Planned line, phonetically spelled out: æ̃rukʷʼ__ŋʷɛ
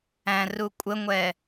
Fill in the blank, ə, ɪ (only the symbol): ə